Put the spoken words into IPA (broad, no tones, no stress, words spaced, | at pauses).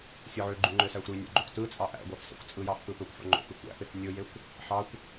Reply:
sʲɯʕøɡ͡ǃy ŋ͡ǃøsæxʷɾynʲo̰ ɡ͡ǃokʷtɯt͡sʼɑ ʔæ̰ɡʷæf sæ̰xʷt͡sʼɯjɑf pɯpøkʷħo̰ ŋ͡ǃo̰fy kʷæ̰fef nʲojekʷ | ħɑkʷ